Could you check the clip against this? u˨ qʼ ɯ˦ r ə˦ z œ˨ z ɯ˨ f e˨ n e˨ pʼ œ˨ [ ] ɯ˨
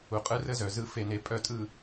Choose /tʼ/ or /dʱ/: tʼ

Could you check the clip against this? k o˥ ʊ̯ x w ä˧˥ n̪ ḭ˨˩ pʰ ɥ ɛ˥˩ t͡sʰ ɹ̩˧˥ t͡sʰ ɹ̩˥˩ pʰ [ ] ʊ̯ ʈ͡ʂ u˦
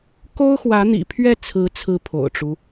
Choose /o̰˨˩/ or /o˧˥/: o̰˨˩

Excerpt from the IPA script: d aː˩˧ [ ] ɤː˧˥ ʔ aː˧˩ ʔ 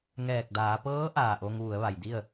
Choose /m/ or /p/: p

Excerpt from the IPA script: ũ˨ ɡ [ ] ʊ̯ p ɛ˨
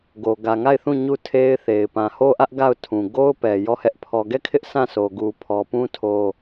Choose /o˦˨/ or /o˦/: o˦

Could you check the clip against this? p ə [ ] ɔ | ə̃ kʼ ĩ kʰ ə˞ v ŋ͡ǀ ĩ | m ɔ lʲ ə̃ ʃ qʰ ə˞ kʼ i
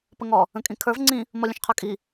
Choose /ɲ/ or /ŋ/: ŋ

